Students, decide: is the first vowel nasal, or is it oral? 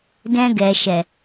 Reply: nasal